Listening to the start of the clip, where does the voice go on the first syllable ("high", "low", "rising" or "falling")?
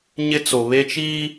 high